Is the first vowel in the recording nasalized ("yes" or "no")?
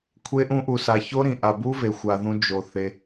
no